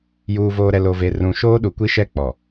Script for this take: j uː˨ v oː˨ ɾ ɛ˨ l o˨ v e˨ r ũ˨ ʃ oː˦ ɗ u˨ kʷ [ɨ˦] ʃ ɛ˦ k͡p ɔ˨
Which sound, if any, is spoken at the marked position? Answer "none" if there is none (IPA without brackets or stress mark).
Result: i˦